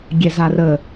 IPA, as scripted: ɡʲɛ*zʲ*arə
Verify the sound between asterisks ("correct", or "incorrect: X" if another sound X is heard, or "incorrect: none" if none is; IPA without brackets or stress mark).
incorrect: z